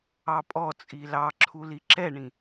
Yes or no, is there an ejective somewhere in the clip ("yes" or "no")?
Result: yes